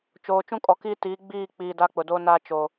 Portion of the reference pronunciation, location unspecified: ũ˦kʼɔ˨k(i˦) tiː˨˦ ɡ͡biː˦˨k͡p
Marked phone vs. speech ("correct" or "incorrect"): incorrect